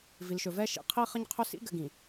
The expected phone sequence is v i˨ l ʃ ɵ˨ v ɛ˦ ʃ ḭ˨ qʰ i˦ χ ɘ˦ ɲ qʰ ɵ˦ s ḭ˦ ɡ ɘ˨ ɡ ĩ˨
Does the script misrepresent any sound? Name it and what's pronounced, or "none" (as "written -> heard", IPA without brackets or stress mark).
none